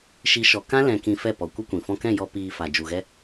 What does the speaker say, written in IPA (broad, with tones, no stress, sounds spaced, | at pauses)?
ʃ i˨˦ ʃ ɔ˨ k ã˦ l ɛ̃˧ k ĩ˧ f ɛ˦˨ p ɔ˨ kʷ ə˦ kʷ ĩ˨ f ɔ̃˧ k ɛ̃˦˨ j ɔ˧ p iː˧ f a˨ d͡ʒ u˨ ɣ ɛ˦